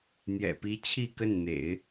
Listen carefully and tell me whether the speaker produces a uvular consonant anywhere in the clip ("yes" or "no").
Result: no